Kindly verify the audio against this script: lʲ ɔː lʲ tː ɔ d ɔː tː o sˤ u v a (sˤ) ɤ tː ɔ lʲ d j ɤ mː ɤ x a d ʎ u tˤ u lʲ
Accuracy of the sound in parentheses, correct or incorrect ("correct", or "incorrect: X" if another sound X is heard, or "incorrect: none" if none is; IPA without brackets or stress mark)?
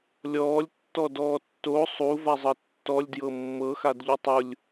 incorrect: zˤ